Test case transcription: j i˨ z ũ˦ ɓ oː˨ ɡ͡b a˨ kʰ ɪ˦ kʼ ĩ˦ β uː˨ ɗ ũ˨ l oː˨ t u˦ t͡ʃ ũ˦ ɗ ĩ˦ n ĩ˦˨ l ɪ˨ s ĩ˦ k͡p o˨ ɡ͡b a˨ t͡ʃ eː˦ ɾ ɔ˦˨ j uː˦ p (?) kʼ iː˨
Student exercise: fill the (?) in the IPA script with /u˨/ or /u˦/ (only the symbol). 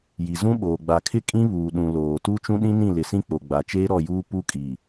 u˦